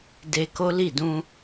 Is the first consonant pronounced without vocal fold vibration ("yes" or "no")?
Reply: no